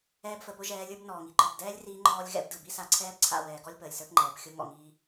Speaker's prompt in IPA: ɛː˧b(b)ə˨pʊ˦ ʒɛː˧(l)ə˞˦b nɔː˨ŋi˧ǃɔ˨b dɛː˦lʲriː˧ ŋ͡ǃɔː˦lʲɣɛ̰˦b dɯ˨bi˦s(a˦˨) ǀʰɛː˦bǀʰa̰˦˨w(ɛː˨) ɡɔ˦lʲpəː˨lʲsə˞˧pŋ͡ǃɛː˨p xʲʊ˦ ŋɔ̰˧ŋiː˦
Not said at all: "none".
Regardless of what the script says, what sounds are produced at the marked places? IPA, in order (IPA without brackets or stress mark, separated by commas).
f, lʲ, a˧, ɛː˨